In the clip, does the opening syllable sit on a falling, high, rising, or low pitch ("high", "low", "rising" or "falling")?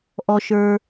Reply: low